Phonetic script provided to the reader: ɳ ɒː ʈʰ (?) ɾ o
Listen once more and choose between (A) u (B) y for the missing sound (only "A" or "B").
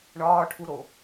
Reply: A